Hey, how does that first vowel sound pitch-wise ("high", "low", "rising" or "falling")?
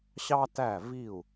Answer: high